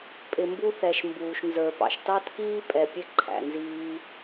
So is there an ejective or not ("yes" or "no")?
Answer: yes